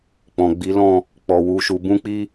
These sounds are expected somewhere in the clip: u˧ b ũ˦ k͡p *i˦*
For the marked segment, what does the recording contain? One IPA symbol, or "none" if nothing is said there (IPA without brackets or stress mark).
i˦